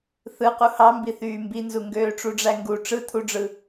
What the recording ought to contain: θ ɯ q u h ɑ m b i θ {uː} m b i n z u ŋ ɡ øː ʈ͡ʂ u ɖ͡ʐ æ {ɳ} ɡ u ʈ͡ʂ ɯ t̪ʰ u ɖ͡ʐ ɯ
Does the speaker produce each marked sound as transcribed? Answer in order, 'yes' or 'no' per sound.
no, no

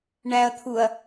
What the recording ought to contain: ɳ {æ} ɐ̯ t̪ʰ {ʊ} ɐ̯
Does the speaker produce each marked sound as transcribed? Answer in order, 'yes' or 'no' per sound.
yes, no

